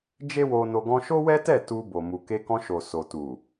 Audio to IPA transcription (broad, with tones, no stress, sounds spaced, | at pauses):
d͡ʒ e˦ w o˧ n o˧ ɡ ɔ̃˧ ʃ o˦ w ɛ˦ t ɛ˦˨ t u˧ b o˨ m u˨ k e˧ k ɔ̃˧ ʃ o˨ s o˨ t u˨